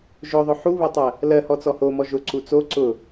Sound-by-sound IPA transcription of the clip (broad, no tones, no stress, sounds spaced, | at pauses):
ʒ ʊ ðˤ ʊ ħ u β ʊ tˤ ɜ | l ɜ h ɔ t͡s ɔ h o m ɔ ʒ ʊ ǀ u t͡s o ǀ ʊ